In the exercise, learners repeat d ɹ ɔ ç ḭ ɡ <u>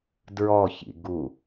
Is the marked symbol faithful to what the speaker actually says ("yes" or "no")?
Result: yes